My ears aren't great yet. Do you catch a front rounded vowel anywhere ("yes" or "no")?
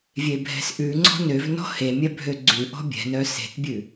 yes